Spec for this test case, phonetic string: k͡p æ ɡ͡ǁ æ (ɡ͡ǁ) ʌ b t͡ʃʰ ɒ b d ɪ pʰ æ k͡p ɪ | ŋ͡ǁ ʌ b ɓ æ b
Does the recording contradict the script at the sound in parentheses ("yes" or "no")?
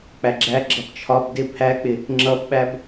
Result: no